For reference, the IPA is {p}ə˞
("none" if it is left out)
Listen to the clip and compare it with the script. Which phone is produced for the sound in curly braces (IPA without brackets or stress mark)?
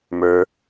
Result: m